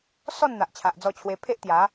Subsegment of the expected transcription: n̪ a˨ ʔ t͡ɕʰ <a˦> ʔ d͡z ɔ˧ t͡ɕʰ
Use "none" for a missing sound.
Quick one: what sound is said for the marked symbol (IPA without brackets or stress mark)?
a˨